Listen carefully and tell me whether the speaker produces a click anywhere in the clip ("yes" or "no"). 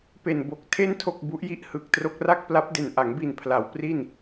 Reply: no